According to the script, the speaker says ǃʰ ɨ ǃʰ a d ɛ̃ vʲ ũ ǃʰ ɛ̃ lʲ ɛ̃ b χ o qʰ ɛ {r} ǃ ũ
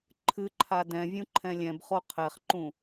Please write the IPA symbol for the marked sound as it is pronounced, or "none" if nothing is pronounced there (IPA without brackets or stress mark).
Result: χ